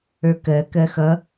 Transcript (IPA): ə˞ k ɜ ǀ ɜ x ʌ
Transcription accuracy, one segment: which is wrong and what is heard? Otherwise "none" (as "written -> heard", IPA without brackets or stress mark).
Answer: ǀ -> k